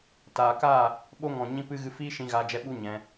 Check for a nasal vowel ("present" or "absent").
present